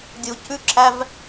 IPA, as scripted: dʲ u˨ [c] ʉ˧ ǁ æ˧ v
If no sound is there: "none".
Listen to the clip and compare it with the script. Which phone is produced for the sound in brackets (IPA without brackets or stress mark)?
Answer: c